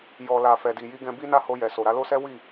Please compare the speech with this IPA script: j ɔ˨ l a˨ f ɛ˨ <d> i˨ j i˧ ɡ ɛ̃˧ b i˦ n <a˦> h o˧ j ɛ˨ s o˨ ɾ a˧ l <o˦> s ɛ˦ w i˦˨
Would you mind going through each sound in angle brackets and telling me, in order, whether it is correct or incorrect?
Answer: correct, correct, correct

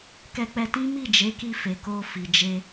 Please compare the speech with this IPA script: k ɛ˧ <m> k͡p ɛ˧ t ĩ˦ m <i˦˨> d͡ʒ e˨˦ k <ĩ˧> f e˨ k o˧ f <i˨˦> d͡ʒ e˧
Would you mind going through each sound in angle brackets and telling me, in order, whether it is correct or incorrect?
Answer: incorrect: none, correct, incorrect: i˧, incorrect: i˨

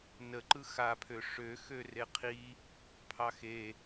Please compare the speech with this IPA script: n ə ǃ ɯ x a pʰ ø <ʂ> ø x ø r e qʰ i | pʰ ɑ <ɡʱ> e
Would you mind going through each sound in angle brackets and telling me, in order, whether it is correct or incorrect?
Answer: correct, incorrect: x

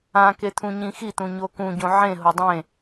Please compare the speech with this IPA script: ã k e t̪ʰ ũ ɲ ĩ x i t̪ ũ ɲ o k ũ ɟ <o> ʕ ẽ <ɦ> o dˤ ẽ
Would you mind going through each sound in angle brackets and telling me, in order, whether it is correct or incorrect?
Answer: incorrect: õ, correct

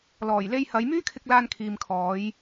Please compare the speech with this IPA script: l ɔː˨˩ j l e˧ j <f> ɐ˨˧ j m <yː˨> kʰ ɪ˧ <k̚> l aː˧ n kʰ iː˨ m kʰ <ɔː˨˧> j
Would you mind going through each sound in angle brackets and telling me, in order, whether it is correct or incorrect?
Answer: incorrect: h, incorrect: yː˥, correct, correct

